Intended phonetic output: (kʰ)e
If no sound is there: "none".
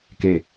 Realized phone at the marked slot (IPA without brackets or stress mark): k